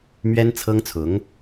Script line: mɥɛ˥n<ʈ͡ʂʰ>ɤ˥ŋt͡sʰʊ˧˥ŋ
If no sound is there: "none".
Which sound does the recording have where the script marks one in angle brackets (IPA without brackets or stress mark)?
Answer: t͡sʰ